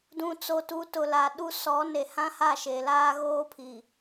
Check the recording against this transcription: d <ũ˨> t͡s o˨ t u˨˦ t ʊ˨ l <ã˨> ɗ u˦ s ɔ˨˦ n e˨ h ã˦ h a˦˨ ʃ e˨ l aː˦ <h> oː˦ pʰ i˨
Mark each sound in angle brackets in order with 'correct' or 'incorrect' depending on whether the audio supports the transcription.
correct, incorrect: a˨, incorrect: ɣ

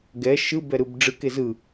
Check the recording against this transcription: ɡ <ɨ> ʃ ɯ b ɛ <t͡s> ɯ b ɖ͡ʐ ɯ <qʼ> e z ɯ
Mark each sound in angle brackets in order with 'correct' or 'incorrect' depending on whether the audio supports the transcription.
incorrect: ɛ, incorrect: ɾ, incorrect: k

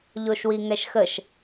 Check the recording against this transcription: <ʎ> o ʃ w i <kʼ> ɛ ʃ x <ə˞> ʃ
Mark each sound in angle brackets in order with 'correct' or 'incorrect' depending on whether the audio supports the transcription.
correct, incorrect: ŋ, incorrect: ə

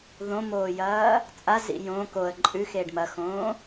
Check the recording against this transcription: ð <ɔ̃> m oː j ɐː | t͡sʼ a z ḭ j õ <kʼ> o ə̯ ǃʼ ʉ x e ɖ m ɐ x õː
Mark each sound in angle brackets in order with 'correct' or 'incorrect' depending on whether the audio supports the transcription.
incorrect: õ, incorrect: k

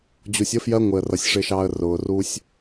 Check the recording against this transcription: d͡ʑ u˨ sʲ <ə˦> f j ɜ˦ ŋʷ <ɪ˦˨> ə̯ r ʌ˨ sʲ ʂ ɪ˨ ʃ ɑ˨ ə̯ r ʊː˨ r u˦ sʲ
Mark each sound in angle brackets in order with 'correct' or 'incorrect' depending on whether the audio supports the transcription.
correct, incorrect: ɪ˨

